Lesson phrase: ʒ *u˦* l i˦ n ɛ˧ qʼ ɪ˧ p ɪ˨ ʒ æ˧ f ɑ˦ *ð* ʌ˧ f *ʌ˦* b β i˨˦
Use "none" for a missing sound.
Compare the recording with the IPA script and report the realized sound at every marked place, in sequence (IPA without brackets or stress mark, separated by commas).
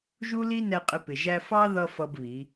u˦, ð, ʌ˦